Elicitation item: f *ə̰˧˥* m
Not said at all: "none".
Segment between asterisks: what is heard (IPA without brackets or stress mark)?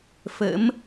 ə̰˧˥